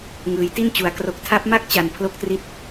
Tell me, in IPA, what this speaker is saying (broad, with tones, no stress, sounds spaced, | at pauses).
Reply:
ŋ ɯː˩˦ j t i˥˩ n t͡ɕ u˩˦ a̯ k r o˨˩ k̚ tʰ a˦˥ p̚ m a˥˩ k̚ t͡ɕ a˨˩ n pʰ l o˥˩ k̚ t r i˥˩ t̚